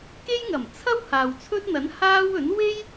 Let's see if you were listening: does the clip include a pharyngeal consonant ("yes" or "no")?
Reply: no